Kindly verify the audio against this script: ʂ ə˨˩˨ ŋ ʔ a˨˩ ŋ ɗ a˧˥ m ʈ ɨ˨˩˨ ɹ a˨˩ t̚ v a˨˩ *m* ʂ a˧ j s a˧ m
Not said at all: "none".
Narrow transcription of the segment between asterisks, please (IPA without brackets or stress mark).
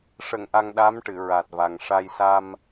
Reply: ŋ